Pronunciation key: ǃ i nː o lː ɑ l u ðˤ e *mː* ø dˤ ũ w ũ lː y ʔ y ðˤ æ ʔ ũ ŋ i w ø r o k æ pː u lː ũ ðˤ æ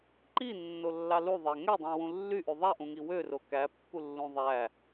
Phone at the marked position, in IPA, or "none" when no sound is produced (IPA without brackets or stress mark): ŋ